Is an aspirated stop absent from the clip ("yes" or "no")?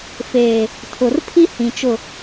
no